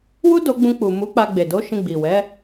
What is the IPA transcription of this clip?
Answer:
w u˦ d o˧ ɡ͡b ũ˧ k͡p u˨ m u˨˦ k͡p a˧ ɡ͡b e˨ d o˨˦ ʃ ĩ˧ ɡ͡b i˨ w ɛ˨˦

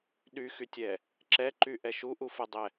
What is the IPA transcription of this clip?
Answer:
ɗ y x y tʲ ɛ | ǁ ɛ ǃ y ʔ ɛ ʃ u ʔ u f ə dˤ ɛ

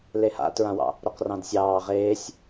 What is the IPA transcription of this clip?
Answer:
l e h a̰ t ɹ ã w ɑ̰ | ɾ o q r ɑ̃ d sʲ ɑː ʁ eː sʲ

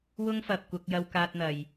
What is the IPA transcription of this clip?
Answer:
w ʊ˥ ŋ f ɐ˨ p̚ kʷ ɐ˧ k̚ j ɐ˧ w k aː˧ t̚ n̪ ɐ˨ j

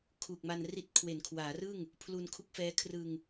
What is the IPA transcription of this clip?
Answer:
kʰ uː˨˩ k̚ m a˧ n r i˦˥ t̚ kʰ w e˩˦ n kʰ w aː˩˦ r ɯ˥˩ ŋ | pʰ l u˧ n kʰ u˦˥ k̚ f ɛː˦˥ kʰ r ɯ˧ ŋ

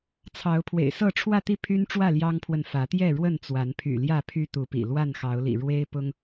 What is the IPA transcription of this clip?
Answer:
t͡sʰ ɑ˨˦ ʊ̯ pʰ w ḛ˨˩ ɪ̯ s ɤ˥˨ ʈ͡ʂʰ w ä˥˨ t̪ i˥˨ pʰ y˦ n ʈ͡ʂ w ä˥˨ l j ɑ˦ ŋ pʰ w ə˨ n f ä˨˦ t̪ j ɛ˥˨ ɻ w ə˥˨ n t͡s w a˨˦ n pʰ y̰˨˩ l j ä˥˨ pʰ y˦ t̪ u˨˦ p ḭ˨˩ l w a˥˨ n x ɑ˨˦ ʊ̯ l ḭ˨˩ ɻ w e˦ ɪ̯ p ʊ˦ ŋ

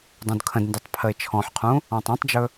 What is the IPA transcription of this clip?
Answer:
dˤ ũ d kʰ ə̃ d n d ʉ tˤ pʰ ə ɪ̯ t͡ʃʰ ɔ̃ ħ qʰ ũ | ɔ̃ tˤ ũ tˤ d͡ʒ ɵ

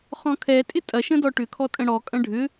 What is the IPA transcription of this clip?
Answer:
χ ɔ̃ kʰ ɛ tʼ ɪ tʼ ɐ ʃ ə̃ d ɔ ʈ ʏ kʰ ɔ tʼ ə̃ ɽ ɔ kʼ ɐ̃ ɖʱ ʏ

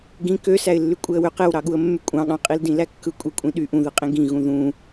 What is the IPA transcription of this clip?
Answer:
ɡ ĩ k ø s æ ɪ̯ lː y kʷʼ e ə̯ w ø q e w ɾ ɑ ɠ u ə̯ mː y kʷʼ ɑ̃ ɠ ɑ̃ qʼ i l d ĩ l æ kː ɯ kʷʼ e kʷʼ ĩ ɗ y ʔ ũ ð ɯ qʼ ĩ ɡ ĩ ɣ ũ ð ũ

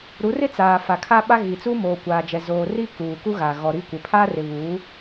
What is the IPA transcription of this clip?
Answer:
ɾ u˨˦ r ɪ˦ t͡s aː˨ f a˨ kʰ a˦ ɓ a˦ ɣ i˨ t͡s u˦ m oː˨ kʷ aː˨ d͡ʒ ɛ˨ z oː˨ r i˦ k uː˨ k u˦ ɣ a˨ ɣ ɔ˨ ɾ i˦˨ kʷ ɪ˨ pʰ a˦ r ɪ˨ β uː˨˦

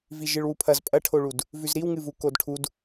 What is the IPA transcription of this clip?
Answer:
v i ʒ ɨ ɭ w u pʰ ɐ z pʼ ɐ ʈʰ o ɭ u d | v ʉ z ɾ i w ŋ ɨ v u k o d ʈʰ u d

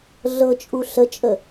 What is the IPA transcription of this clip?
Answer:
ɮ ɤ t͡ʃʼ u ɬ ə t͡ʃʼ ə

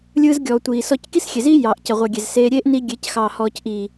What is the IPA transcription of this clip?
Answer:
lʲ ɯː˧ z ɡʲ ɔː˨ tʷ iː˨ s ɔ˧ c k i˦ s xʲ e˨ z iː˦ j ɑː˨ ʔ c ɐ˨ ʁʷ e˨ ɡʲ e˨ z s eː˧ ɾʲ eː˦ ʔ n i˧ ɡʲ e˨˦ c x ɑː˨ h ɔː˨ c ʔ iː˨

